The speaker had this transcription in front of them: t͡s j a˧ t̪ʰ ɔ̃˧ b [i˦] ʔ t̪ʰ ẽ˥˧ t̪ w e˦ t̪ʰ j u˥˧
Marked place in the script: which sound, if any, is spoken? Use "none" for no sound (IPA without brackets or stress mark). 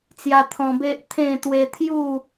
e˦